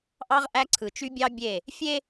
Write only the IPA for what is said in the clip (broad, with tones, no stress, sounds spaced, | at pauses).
ʔ ɑ˦ ʁ ʔ æ˦ ǀʰ ɯ˨ t͡ʃ y˦ bʲ ɑ˦ bʲ e˦˨ | fʲ e˦